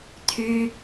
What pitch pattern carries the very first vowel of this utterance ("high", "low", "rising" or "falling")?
high